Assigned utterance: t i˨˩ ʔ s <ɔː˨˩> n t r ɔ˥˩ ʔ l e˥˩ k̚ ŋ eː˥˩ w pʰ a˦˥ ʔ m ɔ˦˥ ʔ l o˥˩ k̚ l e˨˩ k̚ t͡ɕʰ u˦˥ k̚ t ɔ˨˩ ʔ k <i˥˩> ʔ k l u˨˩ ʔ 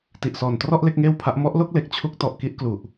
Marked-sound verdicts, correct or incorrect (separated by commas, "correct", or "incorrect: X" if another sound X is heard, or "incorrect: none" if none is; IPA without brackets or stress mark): correct, correct